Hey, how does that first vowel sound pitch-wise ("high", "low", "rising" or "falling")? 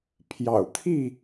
low